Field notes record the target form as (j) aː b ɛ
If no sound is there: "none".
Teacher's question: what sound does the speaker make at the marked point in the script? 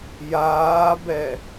j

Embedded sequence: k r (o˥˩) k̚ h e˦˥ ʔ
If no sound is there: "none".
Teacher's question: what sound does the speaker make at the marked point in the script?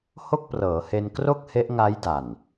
o˥˩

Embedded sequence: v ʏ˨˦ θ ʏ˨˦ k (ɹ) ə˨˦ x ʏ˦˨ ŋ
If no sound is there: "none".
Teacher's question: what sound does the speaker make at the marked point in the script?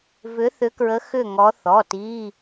ɹ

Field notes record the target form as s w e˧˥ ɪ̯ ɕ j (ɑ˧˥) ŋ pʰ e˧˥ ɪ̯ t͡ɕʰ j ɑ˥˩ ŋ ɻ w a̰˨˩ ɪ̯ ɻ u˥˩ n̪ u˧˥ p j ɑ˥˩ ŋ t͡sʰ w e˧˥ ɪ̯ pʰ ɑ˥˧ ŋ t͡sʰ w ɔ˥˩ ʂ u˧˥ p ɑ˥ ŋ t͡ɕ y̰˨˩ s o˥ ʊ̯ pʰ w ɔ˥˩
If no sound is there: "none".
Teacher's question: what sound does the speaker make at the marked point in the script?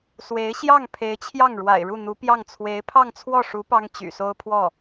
ɑ˥˩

